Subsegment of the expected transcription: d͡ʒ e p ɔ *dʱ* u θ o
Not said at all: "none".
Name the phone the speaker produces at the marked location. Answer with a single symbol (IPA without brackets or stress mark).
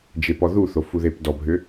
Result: ð